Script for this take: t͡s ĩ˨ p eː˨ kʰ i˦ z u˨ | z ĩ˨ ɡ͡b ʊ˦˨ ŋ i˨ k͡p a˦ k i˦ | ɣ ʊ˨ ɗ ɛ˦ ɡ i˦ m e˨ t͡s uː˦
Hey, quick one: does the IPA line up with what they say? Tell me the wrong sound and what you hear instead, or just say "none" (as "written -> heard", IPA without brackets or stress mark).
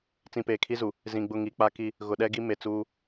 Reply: none